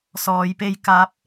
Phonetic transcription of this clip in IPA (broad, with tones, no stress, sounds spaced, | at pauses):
s ɔː˧ j p e˥ j k aː˥ p̚